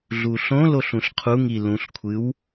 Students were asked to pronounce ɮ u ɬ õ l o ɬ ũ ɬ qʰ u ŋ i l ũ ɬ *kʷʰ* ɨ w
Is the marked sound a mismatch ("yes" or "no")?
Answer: no